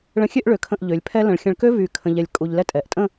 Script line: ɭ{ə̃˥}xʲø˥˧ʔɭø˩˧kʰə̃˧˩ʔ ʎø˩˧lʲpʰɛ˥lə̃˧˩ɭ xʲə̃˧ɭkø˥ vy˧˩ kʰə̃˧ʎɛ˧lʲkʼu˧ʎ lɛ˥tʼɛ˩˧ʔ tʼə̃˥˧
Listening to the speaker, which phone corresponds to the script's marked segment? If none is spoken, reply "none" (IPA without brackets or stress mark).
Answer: ə̃˧